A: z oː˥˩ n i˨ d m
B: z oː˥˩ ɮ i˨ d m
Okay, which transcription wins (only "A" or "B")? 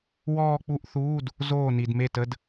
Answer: A